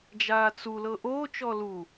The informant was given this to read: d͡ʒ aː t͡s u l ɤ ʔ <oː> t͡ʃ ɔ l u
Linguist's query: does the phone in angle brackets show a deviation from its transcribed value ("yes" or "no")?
no